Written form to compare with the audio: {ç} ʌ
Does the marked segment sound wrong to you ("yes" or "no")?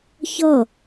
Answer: no